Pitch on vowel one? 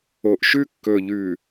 low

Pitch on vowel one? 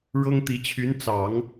high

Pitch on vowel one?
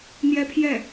high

